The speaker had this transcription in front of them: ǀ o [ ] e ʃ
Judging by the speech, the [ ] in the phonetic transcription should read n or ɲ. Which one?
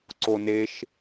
n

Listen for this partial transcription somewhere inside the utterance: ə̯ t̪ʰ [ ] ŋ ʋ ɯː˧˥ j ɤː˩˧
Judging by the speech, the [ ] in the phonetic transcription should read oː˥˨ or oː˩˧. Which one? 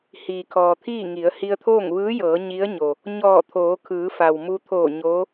oː˥˨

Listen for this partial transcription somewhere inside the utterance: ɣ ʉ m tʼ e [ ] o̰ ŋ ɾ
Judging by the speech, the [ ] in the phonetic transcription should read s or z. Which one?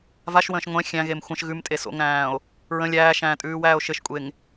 s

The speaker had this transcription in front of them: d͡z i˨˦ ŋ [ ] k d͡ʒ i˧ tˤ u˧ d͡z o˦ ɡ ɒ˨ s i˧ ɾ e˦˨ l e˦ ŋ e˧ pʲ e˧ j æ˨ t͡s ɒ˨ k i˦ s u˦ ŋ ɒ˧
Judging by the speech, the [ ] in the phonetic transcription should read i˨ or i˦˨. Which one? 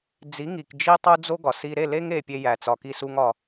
i˨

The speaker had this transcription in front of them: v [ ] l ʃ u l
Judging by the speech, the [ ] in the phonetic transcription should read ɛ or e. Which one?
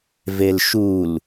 e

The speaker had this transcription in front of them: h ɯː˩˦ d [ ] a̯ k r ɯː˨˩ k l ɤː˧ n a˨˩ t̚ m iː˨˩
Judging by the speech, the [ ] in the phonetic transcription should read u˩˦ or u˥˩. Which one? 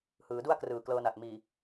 u˥˩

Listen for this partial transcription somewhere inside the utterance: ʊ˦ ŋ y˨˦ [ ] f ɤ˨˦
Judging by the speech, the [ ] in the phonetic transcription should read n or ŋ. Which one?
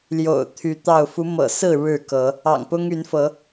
n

